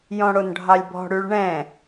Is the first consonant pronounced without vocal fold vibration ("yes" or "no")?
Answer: no